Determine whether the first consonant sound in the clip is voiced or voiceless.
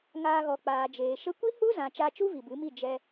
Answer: voiced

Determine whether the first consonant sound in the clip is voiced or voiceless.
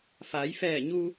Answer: voiceless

